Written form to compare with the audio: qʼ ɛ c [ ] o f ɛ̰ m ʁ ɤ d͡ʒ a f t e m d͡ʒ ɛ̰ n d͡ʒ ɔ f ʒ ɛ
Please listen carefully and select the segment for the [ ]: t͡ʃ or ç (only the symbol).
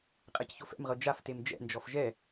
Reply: ç